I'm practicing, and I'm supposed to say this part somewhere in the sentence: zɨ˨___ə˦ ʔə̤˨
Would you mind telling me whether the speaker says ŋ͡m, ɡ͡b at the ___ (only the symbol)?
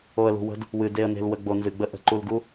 ɡ͡b